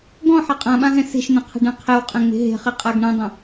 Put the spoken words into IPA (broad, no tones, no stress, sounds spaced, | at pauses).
ɡ ɔ̃ ħ a qʼ ã ɓ ã ɦ ɛ̃ s e̤ ʃ n̪ ɛ̃ qʰ ɛ̤ ɖ ɛ̃ qʰ ɛ w qʼ ɛ̃ ŋ͡m e̤ ɦ e̤ χ e qʼ a ɡ ɳ ɛ̃ dˤ ẽ